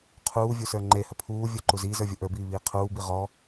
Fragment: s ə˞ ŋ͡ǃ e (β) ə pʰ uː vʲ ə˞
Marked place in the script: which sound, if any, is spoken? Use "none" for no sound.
h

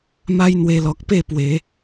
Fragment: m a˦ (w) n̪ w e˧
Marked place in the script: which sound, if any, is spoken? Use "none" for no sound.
j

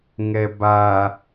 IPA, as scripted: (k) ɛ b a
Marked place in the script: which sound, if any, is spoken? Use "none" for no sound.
ŋ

